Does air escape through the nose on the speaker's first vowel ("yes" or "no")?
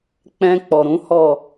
yes